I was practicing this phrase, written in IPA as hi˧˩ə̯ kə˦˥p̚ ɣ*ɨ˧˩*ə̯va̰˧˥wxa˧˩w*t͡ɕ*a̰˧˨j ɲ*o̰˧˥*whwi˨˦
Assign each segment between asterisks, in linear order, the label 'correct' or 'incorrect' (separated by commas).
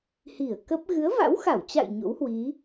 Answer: incorrect, correct, correct